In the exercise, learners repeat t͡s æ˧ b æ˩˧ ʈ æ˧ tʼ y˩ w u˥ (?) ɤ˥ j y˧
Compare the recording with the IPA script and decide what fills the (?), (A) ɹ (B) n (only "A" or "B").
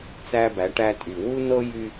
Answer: B